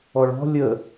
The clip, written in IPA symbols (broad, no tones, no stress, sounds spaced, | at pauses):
ɔ ɭ ɔ̤ lʲ ə